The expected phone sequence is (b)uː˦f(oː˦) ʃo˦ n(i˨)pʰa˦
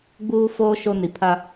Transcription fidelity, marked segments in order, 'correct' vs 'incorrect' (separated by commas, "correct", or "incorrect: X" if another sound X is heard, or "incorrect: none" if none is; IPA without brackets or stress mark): incorrect: ɡ͡b, correct, correct